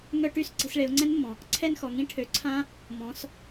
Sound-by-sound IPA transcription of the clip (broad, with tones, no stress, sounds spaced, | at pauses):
ŋ œ˦˨ ʈ y˧˥˧ s ǀ i̤˩˧ s ɭ e˩˧ ʊ̯ ŋ͡ǀ ɛ̃˦˥ n mː ɔ̃˩ | ǀʰ ɛ˦˨ n x ɔ˩ ŋ ĩ˦˥ ʈʰ ø˩˧ ǀʰ ã˦˥ | m ɔ̃˩˧ s